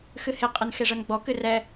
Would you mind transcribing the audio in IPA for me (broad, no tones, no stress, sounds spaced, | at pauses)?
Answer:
x ɨ h e qʼ ɨ n x e ʐ ɤ n ɡ͡b ɔ k ɨ r ɛ